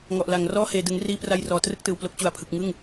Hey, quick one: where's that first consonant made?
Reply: velum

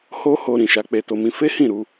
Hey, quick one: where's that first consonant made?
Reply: throat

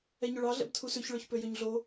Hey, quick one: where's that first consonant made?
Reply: palate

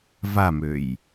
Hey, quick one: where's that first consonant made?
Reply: lips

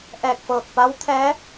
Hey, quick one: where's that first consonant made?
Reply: throat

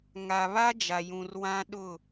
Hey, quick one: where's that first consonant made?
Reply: velum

